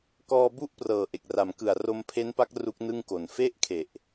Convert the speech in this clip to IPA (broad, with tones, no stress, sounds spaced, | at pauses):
k ɔː˧ b u˥˩ ʔ p r ɤː˨˩ ʔ e˨˩ k̚ r a˩˦ m k ɯ˨˩ a̯ r o˧ m pʰ e˦˥ n p a˦˥ k̚ r u˦˥ k̚ n ɯ˥˩ ŋ k o˨˩ n f e˥˩ ʔ kʰ e˨˩ ʔ